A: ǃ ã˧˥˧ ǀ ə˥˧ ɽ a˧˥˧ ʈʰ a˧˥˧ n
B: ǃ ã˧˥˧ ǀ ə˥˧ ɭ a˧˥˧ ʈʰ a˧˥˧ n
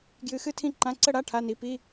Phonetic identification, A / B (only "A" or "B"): A